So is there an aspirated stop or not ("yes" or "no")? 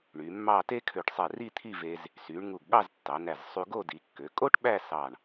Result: yes